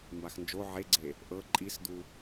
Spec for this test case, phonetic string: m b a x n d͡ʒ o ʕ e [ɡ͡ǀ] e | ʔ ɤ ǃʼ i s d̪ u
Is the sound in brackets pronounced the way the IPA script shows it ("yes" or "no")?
yes